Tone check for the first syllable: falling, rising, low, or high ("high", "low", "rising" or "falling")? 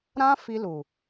high